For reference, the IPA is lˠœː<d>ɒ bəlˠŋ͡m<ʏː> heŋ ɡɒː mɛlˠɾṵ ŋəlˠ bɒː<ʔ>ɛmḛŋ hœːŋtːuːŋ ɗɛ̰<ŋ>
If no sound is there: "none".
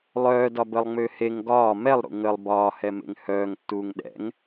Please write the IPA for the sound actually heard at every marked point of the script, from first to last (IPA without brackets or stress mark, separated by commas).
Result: d, ʏː, h, ŋ